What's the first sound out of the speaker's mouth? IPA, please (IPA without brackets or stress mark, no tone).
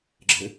ɡ͡ǁ